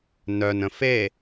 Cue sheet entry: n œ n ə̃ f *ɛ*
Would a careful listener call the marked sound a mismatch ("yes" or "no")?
yes